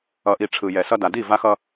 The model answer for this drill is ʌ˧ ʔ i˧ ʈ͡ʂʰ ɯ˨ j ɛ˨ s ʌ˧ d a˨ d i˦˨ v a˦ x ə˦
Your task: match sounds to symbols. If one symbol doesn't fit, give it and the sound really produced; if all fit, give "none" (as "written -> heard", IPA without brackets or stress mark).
ə˦ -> ʌ˦